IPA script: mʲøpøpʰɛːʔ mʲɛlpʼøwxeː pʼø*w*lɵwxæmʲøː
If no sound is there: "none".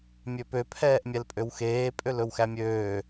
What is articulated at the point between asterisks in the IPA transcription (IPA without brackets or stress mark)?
none